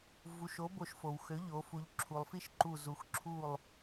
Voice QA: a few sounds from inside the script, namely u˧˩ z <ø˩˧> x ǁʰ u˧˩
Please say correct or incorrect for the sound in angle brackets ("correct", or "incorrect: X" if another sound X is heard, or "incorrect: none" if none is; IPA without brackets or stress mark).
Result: incorrect: u˩˧